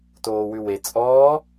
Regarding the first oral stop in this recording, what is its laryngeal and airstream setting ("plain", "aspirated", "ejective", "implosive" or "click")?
plain